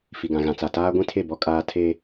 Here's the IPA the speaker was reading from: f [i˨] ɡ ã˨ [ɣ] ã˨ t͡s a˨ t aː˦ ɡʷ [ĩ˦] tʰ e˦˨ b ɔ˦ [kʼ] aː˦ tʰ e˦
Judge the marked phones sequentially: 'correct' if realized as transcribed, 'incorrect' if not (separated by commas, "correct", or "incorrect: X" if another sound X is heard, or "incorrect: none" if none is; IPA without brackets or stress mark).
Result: correct, correct, correct, correct